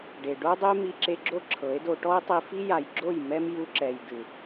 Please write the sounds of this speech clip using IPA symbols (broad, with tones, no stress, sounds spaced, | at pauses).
ɖ e˨ ɖ o˦ dˤ e˦ m i˧ ǁ e˧ ɡ͡ǁ o˦ ǁʰ ɤ˨˦ e̯ d o˧ ʈ ɔ˦ e̯ tˤ i˧ f i˦ j a˨ j ɡ͡ǁ o˦˨ j m ɛ˦ m j u˧ ǁ ɛ˨ j d ɯ˨